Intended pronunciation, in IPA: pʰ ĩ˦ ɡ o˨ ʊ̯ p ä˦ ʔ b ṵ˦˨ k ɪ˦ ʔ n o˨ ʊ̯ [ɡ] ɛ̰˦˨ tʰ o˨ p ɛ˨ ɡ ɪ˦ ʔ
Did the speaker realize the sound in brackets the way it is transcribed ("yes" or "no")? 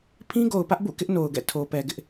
yes